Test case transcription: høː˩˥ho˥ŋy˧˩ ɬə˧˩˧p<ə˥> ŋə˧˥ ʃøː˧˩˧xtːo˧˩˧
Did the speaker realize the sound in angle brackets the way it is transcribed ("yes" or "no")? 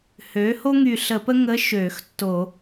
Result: yes